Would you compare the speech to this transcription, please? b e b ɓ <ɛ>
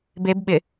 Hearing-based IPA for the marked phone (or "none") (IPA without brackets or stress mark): ɪ